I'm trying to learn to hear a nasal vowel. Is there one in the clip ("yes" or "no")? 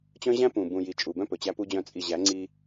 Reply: yes